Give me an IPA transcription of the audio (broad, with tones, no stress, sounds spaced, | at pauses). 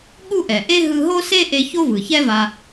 ɠ u˥ ʔ ɛ˩ ʔ e˥ ɦ ɯ˧ ɦ o˥ s e˥ ʔ e˧ ç o˥ v ɯ˩ ç ɛ˥ v a˧